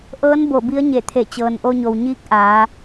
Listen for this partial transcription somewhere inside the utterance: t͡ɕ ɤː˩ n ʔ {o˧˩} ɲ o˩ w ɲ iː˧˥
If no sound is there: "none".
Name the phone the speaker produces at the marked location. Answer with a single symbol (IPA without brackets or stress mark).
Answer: o˧